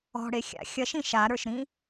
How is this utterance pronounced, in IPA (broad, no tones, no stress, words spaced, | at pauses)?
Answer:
ɔ̤ ɽexʲa̰ xʲɐʃĩ ʃaɾə˞ʃɾĩ